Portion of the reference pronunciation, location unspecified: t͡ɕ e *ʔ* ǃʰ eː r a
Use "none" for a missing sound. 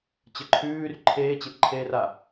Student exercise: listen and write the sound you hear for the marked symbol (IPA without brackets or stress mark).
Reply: ʔ